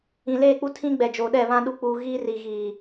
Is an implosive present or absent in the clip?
present